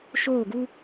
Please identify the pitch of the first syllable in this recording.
falling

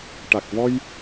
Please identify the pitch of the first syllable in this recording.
low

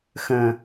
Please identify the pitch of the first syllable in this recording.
low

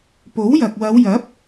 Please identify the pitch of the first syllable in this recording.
rising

